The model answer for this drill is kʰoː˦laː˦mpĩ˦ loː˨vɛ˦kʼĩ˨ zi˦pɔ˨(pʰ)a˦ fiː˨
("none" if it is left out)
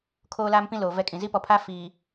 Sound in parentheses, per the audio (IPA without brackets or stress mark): pʰ